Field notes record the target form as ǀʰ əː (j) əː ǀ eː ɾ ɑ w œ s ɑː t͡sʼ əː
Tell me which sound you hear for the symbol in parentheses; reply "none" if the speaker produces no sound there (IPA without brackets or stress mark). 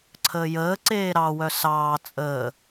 j